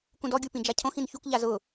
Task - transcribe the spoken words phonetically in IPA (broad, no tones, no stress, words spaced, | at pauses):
kũdɔ ɡʲupĩd͡ʒacʰõx ĩnçuk ʎazʊ